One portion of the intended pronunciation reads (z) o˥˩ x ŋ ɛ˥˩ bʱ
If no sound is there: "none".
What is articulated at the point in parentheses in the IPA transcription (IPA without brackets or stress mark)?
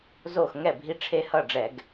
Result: z